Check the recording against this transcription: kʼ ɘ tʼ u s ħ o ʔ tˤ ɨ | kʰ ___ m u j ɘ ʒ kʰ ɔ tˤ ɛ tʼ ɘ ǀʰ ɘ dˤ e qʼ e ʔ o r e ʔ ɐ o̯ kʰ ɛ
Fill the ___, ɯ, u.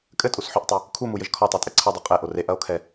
u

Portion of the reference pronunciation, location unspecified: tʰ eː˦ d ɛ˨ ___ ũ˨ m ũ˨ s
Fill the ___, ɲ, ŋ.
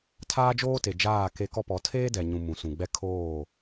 ɲ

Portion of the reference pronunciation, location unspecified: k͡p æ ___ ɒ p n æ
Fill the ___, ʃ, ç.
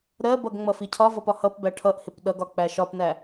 ʃ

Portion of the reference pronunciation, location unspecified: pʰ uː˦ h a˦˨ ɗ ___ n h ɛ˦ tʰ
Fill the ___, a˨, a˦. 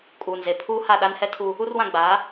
a˦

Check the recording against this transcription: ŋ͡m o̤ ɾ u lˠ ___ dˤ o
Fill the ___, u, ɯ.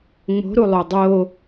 u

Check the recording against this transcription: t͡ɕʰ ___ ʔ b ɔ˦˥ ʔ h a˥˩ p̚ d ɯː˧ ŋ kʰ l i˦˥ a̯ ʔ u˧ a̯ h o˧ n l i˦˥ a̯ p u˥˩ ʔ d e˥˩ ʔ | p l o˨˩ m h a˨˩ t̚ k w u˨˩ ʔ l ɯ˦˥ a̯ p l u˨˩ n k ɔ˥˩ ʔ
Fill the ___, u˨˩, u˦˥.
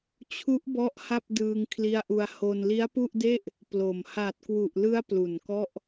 u˦˥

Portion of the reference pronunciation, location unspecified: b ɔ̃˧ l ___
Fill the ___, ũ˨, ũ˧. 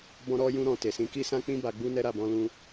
ũ˧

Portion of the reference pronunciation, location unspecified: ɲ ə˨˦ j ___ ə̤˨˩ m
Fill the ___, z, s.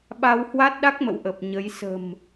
s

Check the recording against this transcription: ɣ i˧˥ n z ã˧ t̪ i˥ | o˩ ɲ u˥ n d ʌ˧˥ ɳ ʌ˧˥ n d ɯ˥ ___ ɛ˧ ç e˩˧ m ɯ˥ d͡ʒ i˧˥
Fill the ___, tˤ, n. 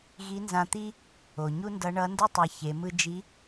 tˤ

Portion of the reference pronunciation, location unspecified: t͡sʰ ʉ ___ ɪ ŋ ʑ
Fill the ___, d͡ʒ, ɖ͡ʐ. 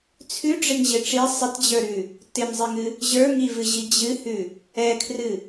ɖ͡ʐ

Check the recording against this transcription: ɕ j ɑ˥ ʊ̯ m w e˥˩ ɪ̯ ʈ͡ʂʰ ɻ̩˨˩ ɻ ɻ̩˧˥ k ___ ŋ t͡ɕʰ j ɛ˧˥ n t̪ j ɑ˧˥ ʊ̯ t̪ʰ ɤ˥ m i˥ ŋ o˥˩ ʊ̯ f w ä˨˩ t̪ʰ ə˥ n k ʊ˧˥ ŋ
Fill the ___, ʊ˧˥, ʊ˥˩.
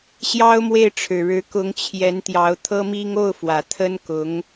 ʊ˧˥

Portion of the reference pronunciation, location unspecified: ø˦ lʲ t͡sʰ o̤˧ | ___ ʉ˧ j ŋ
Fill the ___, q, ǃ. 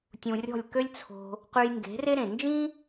q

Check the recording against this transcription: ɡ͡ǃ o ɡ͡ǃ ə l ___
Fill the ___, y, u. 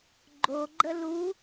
u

